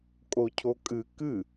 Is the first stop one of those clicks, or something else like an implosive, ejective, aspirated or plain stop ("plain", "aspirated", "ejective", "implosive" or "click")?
ejective